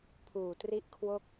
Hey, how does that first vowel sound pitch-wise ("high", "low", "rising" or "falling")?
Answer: low